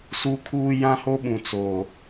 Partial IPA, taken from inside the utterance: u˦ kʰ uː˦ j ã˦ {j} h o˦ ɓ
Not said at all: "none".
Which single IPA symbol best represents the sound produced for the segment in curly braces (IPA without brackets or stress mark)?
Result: none